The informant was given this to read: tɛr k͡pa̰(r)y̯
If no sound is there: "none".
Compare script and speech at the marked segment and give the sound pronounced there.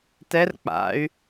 none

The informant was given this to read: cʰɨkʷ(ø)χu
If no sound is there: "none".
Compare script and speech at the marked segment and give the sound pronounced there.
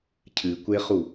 e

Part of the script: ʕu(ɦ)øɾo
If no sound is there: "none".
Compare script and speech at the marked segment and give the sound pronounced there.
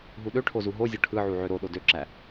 ʕ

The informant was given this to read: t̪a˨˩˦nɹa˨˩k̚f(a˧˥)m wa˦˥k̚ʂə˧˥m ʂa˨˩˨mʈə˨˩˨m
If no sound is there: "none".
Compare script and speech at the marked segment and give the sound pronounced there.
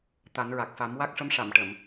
a˨˩˦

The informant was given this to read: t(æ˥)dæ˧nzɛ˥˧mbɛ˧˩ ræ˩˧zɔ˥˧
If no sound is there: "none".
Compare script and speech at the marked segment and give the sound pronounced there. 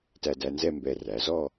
æ˧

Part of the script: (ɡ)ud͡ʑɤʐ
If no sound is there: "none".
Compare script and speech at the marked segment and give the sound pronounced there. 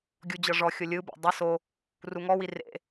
ɡʲ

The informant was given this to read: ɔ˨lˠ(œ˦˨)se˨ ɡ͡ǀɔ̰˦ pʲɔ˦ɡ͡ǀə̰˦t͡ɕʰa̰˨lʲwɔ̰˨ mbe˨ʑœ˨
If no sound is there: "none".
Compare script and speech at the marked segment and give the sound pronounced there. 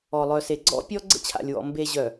œ˨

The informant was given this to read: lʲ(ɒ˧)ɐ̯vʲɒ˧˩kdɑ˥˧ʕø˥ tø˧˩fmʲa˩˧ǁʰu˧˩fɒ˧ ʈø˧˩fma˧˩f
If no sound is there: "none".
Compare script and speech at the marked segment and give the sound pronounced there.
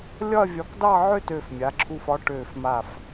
ɒ˥˧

